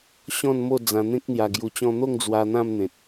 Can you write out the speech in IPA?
ɕ ɔ̃˥˧ n m o˥˧ d͡z ã˧ n̪ ẽ˦ k̚ n̪ j a˧ ɡ j u˧ t͡ɕ ɔ̃˦ n̪ o˥˧ ŋ d͡z w a˧ n̪ ã˥˧ m n̪ ẽ˨ t̚

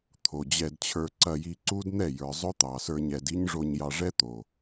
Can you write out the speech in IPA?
t̪ʰ o˨ d͡ʑ ɛ˧ d t͡ɕʰ ə˞˧ ǀ ɐ˧ j i˧ ǀ u˦ d n̪ ɛ˦˨ j ə˞˨ zˤ ɵ˦ t̪ ɑ˨ s ə˞˧ ɲ ɛ˧ d i˦ ɲ ʐ o˧ ɲ j ɑ˧ ʐ ɛ˦ t̪ o˨

